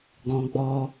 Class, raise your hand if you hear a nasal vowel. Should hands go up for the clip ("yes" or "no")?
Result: yes